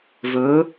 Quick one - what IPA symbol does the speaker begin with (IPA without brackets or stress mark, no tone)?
v